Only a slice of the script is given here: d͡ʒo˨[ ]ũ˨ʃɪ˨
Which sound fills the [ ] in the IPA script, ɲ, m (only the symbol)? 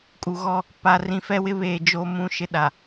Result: m